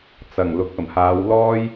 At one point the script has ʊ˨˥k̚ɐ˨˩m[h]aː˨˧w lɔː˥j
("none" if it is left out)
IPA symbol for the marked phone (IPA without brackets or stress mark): h